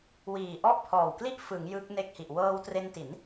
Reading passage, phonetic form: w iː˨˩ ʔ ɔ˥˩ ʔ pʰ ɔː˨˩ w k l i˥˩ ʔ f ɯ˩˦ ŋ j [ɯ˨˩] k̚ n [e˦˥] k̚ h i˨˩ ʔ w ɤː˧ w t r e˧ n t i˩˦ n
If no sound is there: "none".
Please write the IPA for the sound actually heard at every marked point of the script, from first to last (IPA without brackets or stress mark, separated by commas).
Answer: ɯ˦˥, e˥˩